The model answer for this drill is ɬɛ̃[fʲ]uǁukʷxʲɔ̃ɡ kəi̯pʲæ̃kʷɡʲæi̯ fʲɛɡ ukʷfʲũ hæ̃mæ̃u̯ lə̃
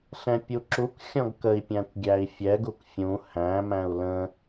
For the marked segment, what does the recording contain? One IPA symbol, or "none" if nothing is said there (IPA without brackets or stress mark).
pʲ